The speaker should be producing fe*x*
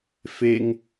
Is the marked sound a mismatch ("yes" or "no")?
yes